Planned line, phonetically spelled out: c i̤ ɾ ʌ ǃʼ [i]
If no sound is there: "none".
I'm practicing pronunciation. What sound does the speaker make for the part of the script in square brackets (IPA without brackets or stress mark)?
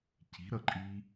i